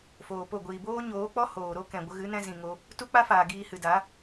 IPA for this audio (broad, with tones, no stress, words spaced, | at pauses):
foː˨po˦˨ ɡʷiː˨boː˦ɲoː˨˦k͡pɔ˦ hoː˨ɾo˦kɛ̃˨ ɡʷə˧ɣɨ˨˦nɛ̃˧ zĩ˨ŋo˧ | tu˦k͡pa˦faː˨ ɡiː˧hɨ˨da˨˦